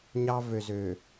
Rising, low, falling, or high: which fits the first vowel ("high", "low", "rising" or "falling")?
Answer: high